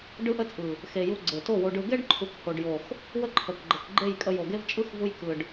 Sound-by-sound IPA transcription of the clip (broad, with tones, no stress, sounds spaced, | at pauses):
ɖ ɯ˦ ʔ ə˦ t͡sʼ ɯ˨ | x e˨ j u˧ ɡ͡ǀ e˨ t o˦˨ w o˧ ɖ ɯ˧ ɡ e˦ ɖ ǃʰ u˨ k h o˨ ɖ j o˨ x | w ə˦ ǃʰ ə˨ k ɡ͡ǃ ə˨ k ɡ͡ǃ e˦˨ j kʼ ə˧ j o˨ ɡ e˦ v t͡ʃʼ ɯ˦ x v u˧ j k ɯ˨ ɖ